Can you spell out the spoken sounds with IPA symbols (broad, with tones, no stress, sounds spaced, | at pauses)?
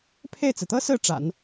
pʰ e˥˩ ɪ̯ t͡s ɹ̩˩ t̪ ɤ˥ s ɹ̩˥˩ ʈ͡ʂ a̰˨˩˦ n